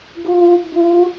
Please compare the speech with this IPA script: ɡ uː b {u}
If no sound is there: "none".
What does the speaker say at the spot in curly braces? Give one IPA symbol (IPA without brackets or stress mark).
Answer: u